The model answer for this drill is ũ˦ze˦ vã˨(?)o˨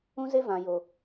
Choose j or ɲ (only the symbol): j